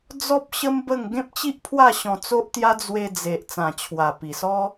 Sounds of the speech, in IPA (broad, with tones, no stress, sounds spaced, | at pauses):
d͡z ɔ˦ p̚ ɕ ə˦ m b ə˥˧ ŋ ɡ ẽ˦ p̚ t͡ɕ i˦ ʔ pʰ w a˥˧ ɕ ɔ̃˧ t͡s o˦ ʔ t̪ j a˦ d͡z w e˧ d͡z e˨ ʔ t͡s ã˨˩ t͡ɕʰ w a˨˩ p i˨˩ s ɔ˦